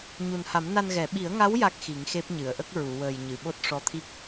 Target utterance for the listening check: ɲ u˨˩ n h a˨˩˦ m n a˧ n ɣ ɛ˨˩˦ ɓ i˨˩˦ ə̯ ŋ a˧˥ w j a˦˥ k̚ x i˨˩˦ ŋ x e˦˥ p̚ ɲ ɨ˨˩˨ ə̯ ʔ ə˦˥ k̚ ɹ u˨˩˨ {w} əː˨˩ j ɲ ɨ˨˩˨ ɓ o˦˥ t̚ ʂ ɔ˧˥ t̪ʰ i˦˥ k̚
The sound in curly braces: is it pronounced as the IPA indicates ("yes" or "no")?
yes